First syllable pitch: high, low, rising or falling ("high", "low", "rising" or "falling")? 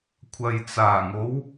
low